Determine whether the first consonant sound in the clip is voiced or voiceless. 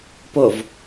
voiceless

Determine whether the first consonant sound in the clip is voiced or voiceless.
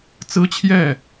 voiceless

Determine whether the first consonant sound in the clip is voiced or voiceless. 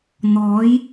voiced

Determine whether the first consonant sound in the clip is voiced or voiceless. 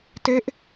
voiceless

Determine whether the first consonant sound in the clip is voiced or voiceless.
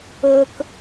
voiceless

